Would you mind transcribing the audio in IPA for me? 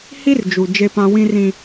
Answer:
hi˦r d͡ʒu˨ d͡ʒe˦pã˦ wĩ˦rĩ˦

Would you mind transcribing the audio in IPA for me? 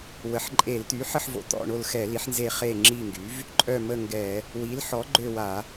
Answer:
wə˩˥ħǃʼe˧˩˧lt̪y˩˥ ħə˦˨ħvo̰˩˥ t̪ɔ̰˦˨ɳo˦˨lxɛ˧˩˧ li˩˥ħnze˦˨ χe˦˨ ŋ͡ǁi˦˨ŋɡy˩˥v | ǃʼœ˦˨mə˦˨ŋɡɛ˧˩˧ | wi˩˥lħɔ˩˥ɡ͡ǃø˦˨wa˧˩˧

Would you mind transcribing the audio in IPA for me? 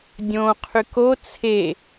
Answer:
dʲõqʰyk o t͡sʰe

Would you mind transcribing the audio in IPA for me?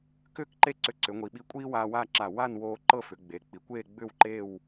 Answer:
kʏː˥kǃe˥ǀʏ˧ ǀʏ˩˧ŋʷi˩˧ɓi˧ kʷʼiː˥waː˧waː˥˧ǁa˧˩ wa˥˧nwoː˧ ǃɤ˥˧fʏ˩˧ɡ͡be˩˧ k͡pi˩˧kʷeː˥˧ɡ͡bʏː˥˧wǃeː˥˧w

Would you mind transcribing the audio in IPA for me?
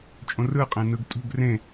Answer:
t͡ʃʼõrɯ qʼẽnɯɡtʼṳɡ rẽ

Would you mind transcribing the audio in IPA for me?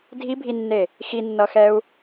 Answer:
dʱibʱinːe | xinːʌxɛu̯

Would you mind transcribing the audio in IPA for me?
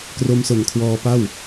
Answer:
kro˧mso˨˩nkʰwɔː˧pa˥˩w

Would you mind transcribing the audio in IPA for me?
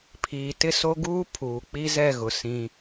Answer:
pʰiː˨tɪ˦so˦ɡuː˦ pʰuː˨k͡pi˦zɛ˦˨ɣʊ˨ sĩ˦

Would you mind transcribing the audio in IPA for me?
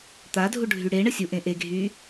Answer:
t̪adʱuɖʱy ɽeɳə sʲuʔẽ ʔeɡʱyː

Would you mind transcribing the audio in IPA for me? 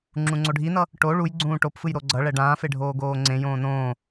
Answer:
ŋ͡ǁũŋ͡ǀoɖʱinʌ | ʈo ɭuj ɡ͡ǀũːʈopfɯj ɾoɡ͡ǀʌɭɛ ɖãːfe ɖʱoːɡoːŋ͡ǀẽjõː nõː

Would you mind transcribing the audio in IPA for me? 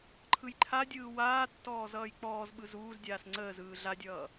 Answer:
ǃʰɯjǃʰadʲɯː waː tːɔːzʌːjk͡pɔːzɓɯ zuːzdʲaːs ŋ͡ǀəːzɯː ɮadʲʌː

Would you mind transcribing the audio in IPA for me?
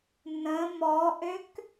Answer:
nə̃ mɔʔøk

